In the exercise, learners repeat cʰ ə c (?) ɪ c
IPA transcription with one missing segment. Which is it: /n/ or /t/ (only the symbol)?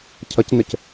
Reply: n